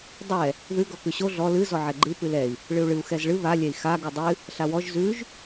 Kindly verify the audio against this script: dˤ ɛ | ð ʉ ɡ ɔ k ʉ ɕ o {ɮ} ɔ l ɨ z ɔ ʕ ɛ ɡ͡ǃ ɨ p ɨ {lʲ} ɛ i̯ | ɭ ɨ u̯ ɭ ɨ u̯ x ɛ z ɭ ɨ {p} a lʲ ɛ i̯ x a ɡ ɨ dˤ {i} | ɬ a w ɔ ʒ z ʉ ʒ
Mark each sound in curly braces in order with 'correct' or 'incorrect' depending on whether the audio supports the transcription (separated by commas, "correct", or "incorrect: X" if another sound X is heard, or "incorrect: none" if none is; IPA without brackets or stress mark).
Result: correct, incorrect: l, incorrect: β, incorrect: ɨ